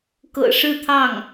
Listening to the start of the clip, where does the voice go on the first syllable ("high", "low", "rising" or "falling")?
low